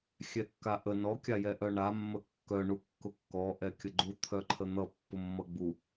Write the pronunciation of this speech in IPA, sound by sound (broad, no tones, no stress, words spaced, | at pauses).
xʲɛkːaʔə nɔ kʲajɛʔœɳa mːəkːœ ɳukːʊkːɔ ʔɛkʲəɡ͡ǃu t̪ʰœǃʰən̪ʌ pːʊmːʌɡ͡bu